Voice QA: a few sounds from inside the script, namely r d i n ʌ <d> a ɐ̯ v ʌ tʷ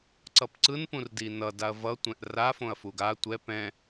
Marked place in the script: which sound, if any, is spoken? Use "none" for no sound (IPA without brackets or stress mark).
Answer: d